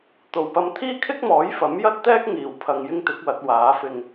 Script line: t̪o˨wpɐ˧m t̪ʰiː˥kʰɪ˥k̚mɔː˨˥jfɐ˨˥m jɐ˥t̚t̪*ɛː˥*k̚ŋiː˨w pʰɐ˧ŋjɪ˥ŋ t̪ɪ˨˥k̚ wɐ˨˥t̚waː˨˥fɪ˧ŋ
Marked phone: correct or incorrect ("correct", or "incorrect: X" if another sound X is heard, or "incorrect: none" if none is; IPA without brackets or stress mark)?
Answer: correct